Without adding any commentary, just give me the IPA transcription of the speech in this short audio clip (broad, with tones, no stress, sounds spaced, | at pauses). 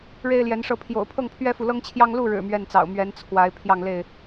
ɻ e˦ ɪ̯ l j ɛ˨˦ n ʂ ɤ˥˨ pʰ j o̰˨˩ ʊ̯ pʰ ɤ˥˨ ŋ pʰ ɥ ɛ˦ f u˨ l ɤ˦ ŋ t͡ɕʰ j ɑ˦ ŋ l u˥˨ ɻ ɻ̩˨˩ m ɥ ɛ˥˨ n t͡s ɑ̰˨˩ ʊ̯ m ɥ ɛ˨˦ n t͡sʰ w a˨˦ ɪ̯ pʰ j ɑ˥˨ ŋ l e˥˨ ɪ̯